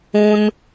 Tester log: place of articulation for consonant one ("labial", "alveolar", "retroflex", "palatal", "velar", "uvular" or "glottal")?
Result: alveolar